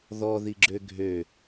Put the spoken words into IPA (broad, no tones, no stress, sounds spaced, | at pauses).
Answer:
ð ɔ ð i ɡ͡ǁ ø ɡʱ ø